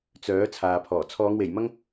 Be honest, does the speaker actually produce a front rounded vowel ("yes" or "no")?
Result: yes